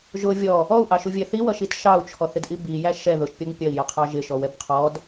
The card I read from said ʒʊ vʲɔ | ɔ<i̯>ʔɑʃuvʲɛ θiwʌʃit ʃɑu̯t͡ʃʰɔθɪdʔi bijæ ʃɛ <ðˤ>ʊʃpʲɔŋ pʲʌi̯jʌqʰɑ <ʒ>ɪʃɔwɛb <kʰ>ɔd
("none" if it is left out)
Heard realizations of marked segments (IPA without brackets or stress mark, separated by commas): u̯, ð, ʒ, qʰ